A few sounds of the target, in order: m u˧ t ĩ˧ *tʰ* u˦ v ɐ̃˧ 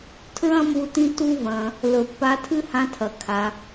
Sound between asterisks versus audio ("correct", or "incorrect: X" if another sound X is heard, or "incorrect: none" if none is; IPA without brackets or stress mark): incorrect: t